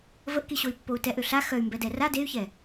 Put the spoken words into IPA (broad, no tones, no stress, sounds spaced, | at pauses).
v ə ʔ k i ɕ o i̯ pː o u̯ t ɛ ʔ ø ɬ a x œ y̯ m b ɛ d ɛ r a d e y̯ ç ɛ